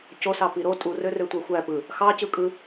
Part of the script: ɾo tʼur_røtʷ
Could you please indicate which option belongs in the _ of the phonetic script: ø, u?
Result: ø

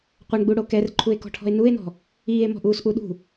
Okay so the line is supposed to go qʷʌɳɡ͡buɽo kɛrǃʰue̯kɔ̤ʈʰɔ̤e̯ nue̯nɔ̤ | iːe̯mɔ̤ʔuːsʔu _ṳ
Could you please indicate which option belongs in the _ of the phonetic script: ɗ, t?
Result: ɗ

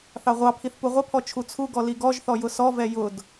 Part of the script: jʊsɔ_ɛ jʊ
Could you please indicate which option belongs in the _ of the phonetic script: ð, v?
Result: v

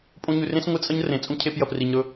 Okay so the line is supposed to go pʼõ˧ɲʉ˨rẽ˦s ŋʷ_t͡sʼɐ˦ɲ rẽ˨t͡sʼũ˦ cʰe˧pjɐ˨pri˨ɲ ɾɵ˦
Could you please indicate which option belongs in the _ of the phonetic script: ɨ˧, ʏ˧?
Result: ɨ˧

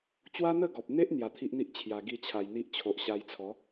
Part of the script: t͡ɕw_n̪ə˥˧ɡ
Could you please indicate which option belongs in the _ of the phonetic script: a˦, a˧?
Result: a˦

